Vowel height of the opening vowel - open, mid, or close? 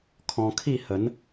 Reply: mid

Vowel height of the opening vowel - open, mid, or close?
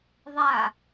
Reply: open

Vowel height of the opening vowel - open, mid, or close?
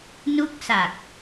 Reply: close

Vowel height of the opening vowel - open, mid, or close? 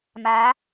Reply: open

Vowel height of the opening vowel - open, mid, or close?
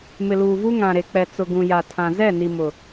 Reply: close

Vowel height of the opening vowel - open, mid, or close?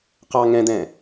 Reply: open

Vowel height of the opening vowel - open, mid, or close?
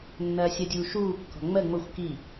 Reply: open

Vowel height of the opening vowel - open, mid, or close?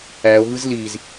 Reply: open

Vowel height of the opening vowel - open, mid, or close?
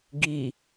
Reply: close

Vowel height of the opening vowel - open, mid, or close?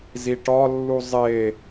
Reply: close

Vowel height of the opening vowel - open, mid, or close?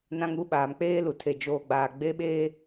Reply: open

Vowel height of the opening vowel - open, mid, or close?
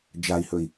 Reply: open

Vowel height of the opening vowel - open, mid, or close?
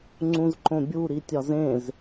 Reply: close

